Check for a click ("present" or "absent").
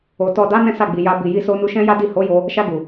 absent